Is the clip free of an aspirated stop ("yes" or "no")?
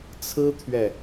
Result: no